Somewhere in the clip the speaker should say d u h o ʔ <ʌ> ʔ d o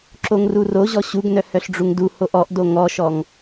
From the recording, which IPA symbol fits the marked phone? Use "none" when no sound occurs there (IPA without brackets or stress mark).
ɔ